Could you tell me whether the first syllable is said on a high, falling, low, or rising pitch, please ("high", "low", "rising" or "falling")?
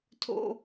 high